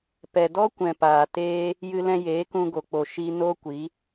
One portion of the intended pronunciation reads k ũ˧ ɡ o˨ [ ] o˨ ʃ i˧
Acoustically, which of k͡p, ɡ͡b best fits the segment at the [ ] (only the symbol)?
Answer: k͡p